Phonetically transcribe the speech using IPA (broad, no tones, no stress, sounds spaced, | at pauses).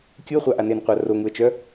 kʲ u ə̯ χʷ a ʔ a n e n qʷ a r o ŋ u ə̯ t͡ʃ œ